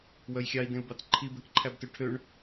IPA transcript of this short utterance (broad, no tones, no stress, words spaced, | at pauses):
wœjxʲɑi̯dẽu̯bɑt ǃʰibɛkǃʰæbtø ʈʰøɳ